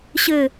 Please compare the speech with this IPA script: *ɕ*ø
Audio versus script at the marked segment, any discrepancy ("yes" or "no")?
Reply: no